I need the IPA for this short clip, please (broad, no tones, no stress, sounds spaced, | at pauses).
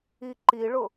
i ǃ i ɭ ʊ